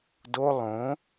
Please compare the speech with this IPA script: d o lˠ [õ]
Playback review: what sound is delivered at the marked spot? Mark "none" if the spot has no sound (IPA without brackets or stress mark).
õ